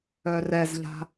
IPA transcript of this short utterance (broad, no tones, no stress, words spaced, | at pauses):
œrɛzʎa̤